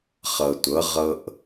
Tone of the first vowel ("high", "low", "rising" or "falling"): low